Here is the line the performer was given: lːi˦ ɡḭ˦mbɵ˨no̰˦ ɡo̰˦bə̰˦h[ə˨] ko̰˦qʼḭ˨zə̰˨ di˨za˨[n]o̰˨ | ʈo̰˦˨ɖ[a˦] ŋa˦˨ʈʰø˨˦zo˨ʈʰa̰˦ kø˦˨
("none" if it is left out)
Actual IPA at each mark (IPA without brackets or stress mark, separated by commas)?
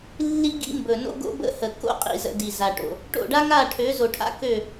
ə˨, ʈ, a˦